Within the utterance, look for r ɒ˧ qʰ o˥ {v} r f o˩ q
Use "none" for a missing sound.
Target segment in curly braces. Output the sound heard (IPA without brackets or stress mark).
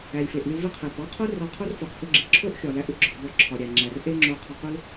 none